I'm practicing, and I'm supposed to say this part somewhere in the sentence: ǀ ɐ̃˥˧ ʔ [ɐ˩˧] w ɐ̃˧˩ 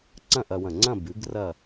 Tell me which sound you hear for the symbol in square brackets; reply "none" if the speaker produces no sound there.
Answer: ɐ˧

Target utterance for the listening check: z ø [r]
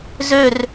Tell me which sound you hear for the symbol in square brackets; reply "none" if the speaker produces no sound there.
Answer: r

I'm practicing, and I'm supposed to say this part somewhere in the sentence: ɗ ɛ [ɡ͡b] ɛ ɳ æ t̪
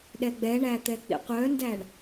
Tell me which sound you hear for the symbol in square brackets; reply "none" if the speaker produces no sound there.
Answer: ɡ͡b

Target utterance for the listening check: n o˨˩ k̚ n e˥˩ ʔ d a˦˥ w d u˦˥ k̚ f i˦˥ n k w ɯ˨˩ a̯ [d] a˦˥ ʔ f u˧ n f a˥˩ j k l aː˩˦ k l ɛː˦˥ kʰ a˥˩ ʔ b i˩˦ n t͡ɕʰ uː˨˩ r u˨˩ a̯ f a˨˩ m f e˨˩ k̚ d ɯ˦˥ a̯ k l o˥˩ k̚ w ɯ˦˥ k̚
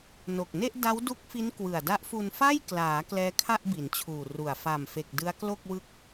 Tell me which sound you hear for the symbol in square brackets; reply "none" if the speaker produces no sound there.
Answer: d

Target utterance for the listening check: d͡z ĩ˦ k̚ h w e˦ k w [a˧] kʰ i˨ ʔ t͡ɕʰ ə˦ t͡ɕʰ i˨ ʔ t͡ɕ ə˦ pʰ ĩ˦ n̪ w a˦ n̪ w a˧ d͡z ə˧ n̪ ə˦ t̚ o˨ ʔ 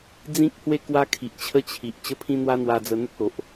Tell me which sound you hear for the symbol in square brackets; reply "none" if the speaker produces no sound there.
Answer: a˦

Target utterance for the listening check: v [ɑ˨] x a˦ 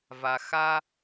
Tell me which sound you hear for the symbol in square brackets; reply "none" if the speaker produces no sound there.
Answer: a˨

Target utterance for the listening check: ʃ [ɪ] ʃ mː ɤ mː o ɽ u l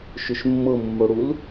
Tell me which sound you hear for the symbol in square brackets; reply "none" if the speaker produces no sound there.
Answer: ʏ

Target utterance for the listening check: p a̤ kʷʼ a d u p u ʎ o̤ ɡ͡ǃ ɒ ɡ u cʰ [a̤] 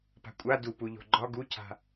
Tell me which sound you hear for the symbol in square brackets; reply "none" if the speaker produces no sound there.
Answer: a̤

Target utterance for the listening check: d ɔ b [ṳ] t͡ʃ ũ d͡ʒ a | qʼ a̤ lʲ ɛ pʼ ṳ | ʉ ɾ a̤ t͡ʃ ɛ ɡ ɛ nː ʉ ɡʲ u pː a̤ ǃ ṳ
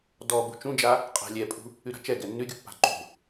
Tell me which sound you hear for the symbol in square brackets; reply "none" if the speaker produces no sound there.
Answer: ṳ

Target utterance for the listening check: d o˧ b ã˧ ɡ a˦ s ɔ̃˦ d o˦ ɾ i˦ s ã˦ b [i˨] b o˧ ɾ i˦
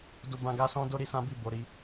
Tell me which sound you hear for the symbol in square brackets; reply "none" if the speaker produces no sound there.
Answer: i˦˨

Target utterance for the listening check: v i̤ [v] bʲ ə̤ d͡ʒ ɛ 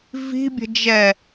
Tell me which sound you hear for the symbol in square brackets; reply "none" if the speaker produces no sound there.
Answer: none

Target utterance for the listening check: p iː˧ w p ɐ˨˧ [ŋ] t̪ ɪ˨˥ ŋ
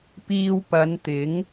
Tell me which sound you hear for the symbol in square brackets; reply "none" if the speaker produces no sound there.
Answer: n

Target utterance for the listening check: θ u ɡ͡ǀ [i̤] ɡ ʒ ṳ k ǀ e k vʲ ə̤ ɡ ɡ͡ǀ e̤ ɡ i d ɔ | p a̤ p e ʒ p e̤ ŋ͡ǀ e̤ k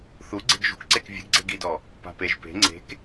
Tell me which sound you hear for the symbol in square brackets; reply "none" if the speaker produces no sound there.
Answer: e̤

